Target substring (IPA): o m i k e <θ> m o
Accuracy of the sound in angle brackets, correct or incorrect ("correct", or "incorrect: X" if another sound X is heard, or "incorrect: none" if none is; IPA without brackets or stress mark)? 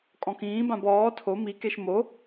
incorrect: ʃ